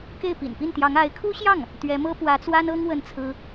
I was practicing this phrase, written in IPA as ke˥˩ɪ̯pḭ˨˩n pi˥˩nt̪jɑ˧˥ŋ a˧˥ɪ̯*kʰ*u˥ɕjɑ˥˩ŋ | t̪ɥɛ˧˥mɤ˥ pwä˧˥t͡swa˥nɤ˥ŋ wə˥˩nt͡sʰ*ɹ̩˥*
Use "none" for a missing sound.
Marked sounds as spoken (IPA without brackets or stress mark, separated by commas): kʰ, ɹ̩˥